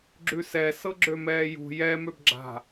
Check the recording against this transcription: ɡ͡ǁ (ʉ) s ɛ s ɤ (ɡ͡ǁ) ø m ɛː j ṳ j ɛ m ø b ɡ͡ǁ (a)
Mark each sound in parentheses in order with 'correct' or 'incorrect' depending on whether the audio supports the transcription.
correct, correct, incorrect

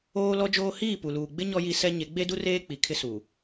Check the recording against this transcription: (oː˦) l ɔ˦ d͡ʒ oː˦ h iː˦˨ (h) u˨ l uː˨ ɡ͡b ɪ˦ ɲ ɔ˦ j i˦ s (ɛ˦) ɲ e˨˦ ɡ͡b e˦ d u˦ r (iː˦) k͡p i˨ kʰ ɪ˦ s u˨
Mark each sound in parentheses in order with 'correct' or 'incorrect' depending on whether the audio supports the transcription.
correct, incorrect, correct, incorrect

